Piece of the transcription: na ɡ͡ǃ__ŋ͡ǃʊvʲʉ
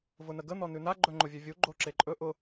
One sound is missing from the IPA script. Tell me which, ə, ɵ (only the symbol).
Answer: ɵ